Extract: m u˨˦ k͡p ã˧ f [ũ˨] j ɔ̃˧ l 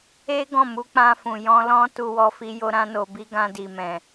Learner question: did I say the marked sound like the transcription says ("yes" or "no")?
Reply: yes